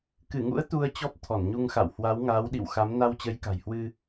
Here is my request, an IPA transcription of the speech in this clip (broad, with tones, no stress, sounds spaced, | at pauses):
k ɨ˧˩ ŋ ṵ˧˥ ə̯ t̪ u˧ ə̯ t͡ɕ ɔ˦˥ p̚ t̪ʰ ɔ˧˩ n ɲ u˧ ŋ x a̰˧˨ w h w a˨˦ w ŋ aː˨˦ w ɗ ḭ˧˨ w x a˨˦ m n a˧ w t͡ɕ ə˨˦ j k a̤˨˩ j h w ɨ˧